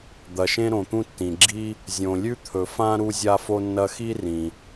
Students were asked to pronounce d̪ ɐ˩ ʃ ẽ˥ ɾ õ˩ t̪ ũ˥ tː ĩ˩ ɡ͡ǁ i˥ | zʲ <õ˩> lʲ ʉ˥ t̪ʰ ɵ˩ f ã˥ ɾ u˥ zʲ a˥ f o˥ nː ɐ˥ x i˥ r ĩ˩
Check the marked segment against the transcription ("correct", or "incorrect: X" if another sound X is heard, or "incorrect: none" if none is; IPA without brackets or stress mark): correct